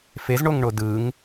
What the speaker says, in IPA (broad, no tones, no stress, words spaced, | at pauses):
fezɳoŋɳo dɯŋ